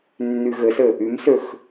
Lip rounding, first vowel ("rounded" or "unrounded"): rounded